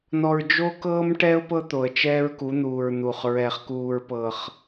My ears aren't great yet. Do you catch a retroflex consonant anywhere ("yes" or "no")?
yes